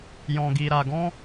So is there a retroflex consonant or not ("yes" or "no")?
no